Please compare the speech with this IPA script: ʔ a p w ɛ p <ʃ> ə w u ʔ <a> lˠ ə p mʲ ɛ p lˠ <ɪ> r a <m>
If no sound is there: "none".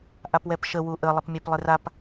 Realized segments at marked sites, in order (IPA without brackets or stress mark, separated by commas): ʃ, ə, ɪ, p